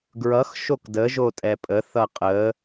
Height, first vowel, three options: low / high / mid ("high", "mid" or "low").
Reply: mid